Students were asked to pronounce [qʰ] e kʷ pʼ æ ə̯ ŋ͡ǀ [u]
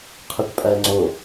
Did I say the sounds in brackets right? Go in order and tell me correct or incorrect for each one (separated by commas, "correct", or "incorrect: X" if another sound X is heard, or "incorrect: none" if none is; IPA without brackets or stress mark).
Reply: correct, incorrect: o